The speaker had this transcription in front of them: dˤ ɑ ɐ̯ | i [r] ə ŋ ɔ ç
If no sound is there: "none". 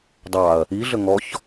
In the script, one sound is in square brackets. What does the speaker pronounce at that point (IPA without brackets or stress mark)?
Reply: ɮ